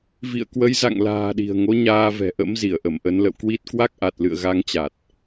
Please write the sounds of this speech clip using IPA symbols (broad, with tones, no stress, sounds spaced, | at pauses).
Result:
v ḭ˧˨ ə̯ k w ə˨˦ j z a̰˧˨ ŋ l a̤ː˨˩ ɗ i̤˨˩ ə̯ ŋ o˨˦ ɲ aː˧ v ɛ̤˨˩ ʔ ə̰˧˥ m z i˧˩ ə̯ ʔ ə˧˩ m ʔ ə˨˦ n l ə̰˧˨ w k w i˦˥ t̚ k w a˦˥ k̚ ʔ a˨˩ t̚ l ɨ̰˧˨ ə̯ ɣ a˨˦ ŋ t͡ɕ a˨˩ t̚